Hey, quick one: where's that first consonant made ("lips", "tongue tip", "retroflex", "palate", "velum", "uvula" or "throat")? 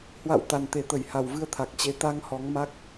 throat